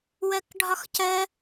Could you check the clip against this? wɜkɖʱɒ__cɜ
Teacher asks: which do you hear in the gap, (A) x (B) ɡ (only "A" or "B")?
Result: A